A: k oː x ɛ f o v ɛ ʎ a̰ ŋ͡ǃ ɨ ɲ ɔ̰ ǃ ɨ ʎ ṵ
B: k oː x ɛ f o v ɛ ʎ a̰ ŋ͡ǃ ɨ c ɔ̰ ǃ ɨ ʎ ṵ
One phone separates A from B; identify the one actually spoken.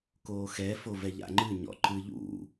A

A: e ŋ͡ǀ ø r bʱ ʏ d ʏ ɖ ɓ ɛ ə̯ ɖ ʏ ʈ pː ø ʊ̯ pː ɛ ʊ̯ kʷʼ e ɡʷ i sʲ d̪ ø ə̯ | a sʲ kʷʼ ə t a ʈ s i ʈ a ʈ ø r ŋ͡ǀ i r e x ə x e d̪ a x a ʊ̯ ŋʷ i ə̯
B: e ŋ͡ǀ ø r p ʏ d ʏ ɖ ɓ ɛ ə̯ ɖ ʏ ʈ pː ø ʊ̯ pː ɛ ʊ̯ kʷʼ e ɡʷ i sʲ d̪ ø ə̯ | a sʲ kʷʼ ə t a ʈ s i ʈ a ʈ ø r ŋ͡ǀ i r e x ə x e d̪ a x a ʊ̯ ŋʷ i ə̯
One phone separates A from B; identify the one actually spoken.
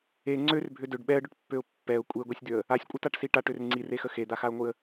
A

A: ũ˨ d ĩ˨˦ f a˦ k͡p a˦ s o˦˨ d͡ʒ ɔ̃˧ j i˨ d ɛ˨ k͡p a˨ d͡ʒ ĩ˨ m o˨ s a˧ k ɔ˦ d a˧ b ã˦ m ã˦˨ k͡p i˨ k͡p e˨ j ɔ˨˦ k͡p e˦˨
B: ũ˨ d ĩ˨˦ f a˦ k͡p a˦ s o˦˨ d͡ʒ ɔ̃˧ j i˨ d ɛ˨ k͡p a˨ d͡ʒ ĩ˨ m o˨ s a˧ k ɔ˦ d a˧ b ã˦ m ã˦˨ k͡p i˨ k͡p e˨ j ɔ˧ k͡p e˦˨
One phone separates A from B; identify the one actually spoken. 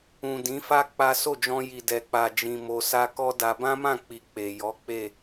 A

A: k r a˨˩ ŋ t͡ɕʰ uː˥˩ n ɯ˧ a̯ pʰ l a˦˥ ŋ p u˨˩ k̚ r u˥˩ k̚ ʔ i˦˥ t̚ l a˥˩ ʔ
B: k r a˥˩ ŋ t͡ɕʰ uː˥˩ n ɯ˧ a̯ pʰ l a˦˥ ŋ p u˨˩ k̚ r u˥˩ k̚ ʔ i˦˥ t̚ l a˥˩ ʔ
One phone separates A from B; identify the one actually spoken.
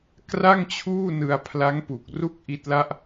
B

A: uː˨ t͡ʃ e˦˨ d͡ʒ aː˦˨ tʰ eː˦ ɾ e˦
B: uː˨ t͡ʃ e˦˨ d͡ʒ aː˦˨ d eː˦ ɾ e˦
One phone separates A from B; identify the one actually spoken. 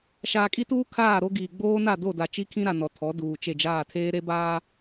A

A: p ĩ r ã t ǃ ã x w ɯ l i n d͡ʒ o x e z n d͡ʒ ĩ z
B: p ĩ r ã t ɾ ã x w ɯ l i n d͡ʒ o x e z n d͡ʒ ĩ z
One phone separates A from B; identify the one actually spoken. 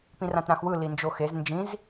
B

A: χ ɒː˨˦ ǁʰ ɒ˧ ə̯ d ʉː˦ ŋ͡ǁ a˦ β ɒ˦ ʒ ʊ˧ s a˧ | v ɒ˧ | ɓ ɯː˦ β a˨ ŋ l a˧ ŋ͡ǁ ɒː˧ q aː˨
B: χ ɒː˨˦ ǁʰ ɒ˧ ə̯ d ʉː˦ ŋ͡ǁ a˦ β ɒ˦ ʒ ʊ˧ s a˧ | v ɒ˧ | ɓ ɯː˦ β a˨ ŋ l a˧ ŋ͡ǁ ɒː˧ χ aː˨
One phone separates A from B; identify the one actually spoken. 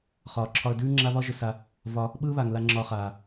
B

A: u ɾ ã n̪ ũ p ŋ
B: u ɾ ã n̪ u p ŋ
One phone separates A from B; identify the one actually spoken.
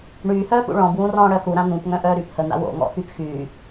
A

